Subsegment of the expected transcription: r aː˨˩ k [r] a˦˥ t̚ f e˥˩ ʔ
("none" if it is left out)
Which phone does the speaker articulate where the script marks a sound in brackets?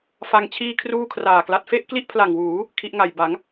l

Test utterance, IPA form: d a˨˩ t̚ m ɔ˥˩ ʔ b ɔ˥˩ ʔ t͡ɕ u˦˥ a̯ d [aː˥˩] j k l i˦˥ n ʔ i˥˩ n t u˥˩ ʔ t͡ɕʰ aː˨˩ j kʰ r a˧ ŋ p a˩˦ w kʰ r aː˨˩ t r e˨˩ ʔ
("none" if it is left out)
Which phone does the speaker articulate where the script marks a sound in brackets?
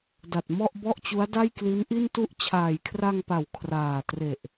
a˥˩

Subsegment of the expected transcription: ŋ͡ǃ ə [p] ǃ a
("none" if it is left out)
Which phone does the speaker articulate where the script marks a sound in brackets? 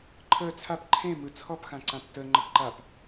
p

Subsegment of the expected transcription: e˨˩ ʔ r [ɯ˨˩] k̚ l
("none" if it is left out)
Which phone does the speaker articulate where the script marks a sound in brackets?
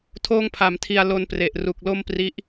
u˨˩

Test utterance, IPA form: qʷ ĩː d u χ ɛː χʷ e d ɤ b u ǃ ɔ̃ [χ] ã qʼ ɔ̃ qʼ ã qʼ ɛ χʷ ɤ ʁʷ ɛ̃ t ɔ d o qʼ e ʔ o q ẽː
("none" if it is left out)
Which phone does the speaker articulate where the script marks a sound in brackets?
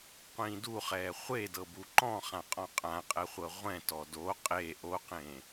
χ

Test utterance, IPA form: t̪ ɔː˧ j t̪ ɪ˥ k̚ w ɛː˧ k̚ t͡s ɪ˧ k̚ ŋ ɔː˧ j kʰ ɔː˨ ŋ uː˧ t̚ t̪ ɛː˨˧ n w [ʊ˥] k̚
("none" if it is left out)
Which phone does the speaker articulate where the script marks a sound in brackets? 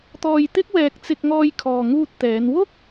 ʊ˥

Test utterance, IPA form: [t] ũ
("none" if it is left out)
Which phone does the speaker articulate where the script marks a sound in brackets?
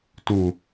t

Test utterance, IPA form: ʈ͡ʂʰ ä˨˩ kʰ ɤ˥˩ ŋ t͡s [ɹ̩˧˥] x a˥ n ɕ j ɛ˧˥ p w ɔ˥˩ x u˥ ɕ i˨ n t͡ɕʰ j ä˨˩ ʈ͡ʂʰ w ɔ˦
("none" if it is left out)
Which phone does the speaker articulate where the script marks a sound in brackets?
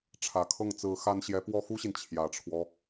ɹ̩˧˥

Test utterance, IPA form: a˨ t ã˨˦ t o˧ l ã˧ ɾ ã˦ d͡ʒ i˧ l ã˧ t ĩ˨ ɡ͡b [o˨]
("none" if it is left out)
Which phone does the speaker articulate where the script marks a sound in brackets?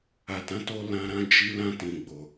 o˨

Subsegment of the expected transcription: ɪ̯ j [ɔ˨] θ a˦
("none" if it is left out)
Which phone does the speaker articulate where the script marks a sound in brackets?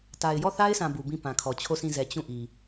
ɔ˦˨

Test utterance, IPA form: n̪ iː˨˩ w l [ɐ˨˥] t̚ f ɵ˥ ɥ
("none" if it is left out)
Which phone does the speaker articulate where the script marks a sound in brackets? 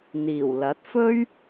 ɐ˨˥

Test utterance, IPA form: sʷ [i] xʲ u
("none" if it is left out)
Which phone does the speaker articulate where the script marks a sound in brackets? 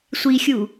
i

